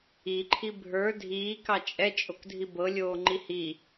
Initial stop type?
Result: click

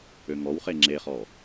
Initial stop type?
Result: click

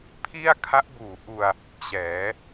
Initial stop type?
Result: aspirated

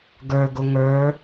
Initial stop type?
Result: plain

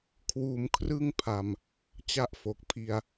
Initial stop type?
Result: aspirated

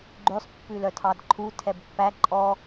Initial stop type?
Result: click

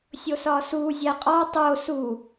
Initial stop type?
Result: ejective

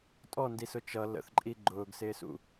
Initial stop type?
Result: ejective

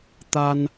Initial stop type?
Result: plain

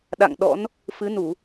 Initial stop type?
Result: implosive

